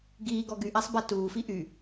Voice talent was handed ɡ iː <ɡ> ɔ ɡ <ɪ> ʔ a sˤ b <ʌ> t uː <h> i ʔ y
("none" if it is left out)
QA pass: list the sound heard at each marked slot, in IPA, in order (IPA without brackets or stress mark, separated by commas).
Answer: ɡ, y, a, f